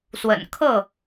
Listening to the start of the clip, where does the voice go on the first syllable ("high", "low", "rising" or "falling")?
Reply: low